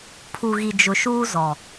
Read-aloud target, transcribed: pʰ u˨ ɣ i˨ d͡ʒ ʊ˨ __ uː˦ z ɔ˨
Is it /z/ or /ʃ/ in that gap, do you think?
ʃ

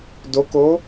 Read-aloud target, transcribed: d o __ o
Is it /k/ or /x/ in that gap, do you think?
k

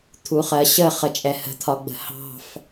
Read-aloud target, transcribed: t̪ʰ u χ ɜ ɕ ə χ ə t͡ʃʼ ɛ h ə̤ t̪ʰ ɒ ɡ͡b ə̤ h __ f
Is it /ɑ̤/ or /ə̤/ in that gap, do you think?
ɑ̤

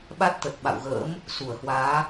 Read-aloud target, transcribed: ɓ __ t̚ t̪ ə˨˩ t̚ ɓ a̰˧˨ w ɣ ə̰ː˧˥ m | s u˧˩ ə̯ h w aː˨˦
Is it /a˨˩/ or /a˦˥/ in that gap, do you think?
a˦˥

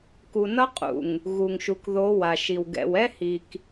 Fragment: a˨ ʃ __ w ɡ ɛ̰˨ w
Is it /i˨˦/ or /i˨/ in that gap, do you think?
i˨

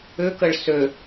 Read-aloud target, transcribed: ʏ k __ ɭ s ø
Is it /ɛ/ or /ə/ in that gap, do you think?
ə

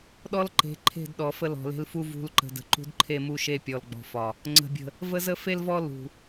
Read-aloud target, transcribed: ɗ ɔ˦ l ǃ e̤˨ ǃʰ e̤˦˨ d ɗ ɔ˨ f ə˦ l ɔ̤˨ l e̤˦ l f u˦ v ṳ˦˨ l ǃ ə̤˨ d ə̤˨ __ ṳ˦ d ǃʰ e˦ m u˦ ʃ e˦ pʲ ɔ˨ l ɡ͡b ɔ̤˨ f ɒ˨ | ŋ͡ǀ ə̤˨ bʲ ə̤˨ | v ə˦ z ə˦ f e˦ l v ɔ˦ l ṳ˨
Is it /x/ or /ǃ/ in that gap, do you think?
ǃ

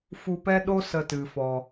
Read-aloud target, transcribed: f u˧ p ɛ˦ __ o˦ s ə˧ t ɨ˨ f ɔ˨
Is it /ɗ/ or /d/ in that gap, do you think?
ɗ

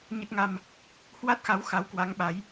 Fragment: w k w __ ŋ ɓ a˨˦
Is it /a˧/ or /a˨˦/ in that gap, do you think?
a˨˦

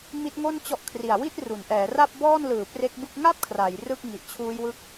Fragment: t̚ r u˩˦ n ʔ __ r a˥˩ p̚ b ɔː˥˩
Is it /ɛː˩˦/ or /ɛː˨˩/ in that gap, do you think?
ɛː˩˦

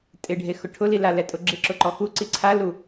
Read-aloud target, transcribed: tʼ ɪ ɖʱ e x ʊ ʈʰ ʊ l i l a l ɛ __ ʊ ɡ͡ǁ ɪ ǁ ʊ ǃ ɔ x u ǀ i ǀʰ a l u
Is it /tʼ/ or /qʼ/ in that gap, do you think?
tʼ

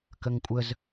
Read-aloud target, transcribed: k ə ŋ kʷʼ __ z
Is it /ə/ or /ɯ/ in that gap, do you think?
ə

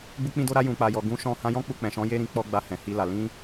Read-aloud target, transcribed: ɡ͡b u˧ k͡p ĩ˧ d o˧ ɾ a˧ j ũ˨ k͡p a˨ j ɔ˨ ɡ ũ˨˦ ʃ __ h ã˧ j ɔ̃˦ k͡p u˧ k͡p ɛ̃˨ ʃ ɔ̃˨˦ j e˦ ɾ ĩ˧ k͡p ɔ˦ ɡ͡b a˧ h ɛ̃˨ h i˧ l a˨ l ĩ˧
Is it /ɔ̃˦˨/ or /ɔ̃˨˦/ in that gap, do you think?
ɔ̃˦˨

